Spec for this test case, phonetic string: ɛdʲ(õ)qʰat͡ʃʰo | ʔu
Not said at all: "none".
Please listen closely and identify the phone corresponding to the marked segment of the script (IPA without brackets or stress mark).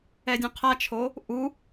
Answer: õ